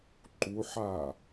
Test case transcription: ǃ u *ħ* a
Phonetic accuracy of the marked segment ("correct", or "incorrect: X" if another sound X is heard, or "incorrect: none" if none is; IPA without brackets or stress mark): correct